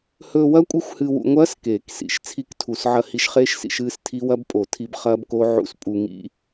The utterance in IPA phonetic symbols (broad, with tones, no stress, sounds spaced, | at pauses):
h ɵː˧ w ɐ˦˥ kʷʼ ɨ˦˥ xʷ h ɨ˧ w ṵ˧ ŋʷ ɐː˦˥ s k eː˨˩˦ k s ḭ˨˩˦ ʃ t͡sʰ i˦˥ k tʰ u˨˩˦ s ʕ ɐ˧ h i˧ ʃ χ eː˦˥ ʃ s ḭ˧ ʃ ɨː˦˥ s tʰ i˦˥ w ɐ˦˥ b pʼ o˨˩˦ tʰ i˧ b χ ɐː˦˥ b k o˦˥ ʕ ṵ˦˥ s pʼ u˧ ŋ ḭ˦˥